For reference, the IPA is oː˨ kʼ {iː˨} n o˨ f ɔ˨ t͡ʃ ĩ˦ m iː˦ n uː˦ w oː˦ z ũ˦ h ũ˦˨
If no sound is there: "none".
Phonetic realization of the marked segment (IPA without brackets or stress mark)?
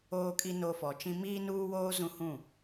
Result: i˨